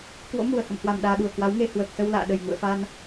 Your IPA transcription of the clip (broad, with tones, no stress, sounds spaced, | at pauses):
k w o̰˧˥ m u˨˩ ə̯ h ə̰˧˨ m h w a˨˩ m ɗ aː˧ ɗ u˨˩ ə̯ k w a˨˦ w ŋ e˧ h w əː˨˩ k̚ s ə˧ w l a̰ː˧˨ ɗ ə˨˩ j ŋ ṵ˧˨ ə̯ f a˧ n